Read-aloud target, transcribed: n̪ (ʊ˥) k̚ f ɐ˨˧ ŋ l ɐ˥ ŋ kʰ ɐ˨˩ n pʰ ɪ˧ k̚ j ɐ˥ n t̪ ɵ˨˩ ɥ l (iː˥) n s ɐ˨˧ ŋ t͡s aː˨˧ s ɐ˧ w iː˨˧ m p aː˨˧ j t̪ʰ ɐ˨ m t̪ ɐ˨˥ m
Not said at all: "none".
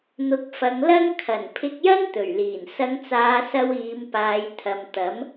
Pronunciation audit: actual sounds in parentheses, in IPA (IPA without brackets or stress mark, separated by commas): ʊ˨˥, iː˨˩